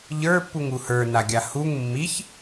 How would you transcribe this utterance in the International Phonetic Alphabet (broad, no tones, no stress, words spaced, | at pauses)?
ʎə˞pːuŋ uhə˞naɡʲa huŋ mːiç